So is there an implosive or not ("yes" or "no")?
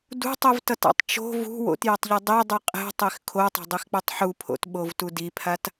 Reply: yes